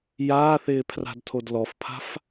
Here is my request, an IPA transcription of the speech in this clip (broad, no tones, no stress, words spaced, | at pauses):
jaːθɪːpʰra̤dtʰod lɔfpʰa̤f